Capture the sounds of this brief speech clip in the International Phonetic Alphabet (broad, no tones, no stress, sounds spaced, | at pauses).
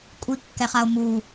kʷʼ i kː ɛ χ a o̯ m u